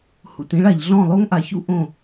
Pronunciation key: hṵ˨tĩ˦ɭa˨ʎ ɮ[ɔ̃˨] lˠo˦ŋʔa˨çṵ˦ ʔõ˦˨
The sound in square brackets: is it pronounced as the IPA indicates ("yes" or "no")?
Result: no